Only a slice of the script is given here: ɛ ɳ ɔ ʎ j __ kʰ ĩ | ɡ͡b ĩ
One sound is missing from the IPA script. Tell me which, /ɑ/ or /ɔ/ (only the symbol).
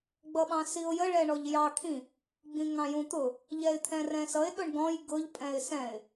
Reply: ɑ